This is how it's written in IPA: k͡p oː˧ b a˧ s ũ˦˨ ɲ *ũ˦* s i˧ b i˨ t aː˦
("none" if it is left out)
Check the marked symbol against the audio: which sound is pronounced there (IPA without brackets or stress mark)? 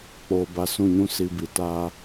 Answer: ũ˦